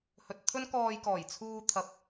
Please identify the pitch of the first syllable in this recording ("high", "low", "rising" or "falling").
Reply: low